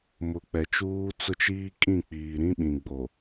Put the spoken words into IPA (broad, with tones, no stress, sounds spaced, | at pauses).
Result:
m ʊ˨ k͡p ɛ˨ t͡ʃ uː˦ t͡s ʊ˦ t͡ʃ iː˦ kʼ ĩ˦˨ k͡p iː˨ ɾ ĩ˦ ɓ ĩ˨ ɡ͡b o˨